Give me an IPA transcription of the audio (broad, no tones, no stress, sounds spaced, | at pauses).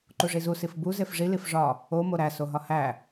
ǃ u ʐ i z u s i f b u z e f ʐ i l i f ʐ ɒ | o m o ɾ æ s o ɦ ɒ h æ